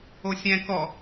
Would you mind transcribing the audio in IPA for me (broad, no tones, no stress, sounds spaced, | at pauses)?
o sʲ ɛ̃ k ɔ